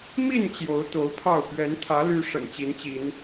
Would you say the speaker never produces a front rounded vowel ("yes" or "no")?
no